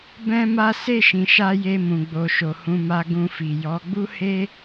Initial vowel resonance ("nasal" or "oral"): nasal